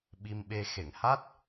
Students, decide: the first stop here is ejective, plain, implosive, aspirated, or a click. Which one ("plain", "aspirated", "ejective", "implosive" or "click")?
implosive